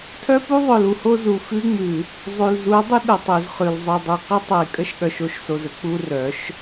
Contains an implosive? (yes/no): yes